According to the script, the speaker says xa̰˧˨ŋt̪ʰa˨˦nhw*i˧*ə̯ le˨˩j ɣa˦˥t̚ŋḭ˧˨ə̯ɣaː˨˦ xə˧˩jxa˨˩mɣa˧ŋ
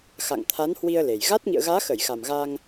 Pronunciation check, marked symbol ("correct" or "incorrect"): correct